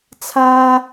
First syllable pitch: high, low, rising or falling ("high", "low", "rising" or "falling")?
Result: high